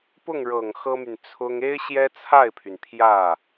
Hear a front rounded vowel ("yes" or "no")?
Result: yes